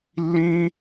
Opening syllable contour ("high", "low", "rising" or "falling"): high